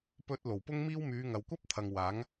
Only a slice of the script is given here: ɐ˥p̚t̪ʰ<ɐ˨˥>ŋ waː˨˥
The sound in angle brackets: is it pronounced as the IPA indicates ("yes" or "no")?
no